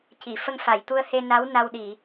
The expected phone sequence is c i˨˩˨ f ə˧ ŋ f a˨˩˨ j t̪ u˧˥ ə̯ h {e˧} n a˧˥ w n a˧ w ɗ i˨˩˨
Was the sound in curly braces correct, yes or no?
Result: yes